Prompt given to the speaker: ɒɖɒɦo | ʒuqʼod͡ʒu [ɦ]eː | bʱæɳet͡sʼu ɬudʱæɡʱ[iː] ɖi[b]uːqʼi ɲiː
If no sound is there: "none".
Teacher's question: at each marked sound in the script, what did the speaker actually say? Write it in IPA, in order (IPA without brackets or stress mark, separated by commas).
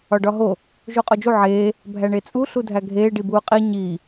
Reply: ʕ, eː, b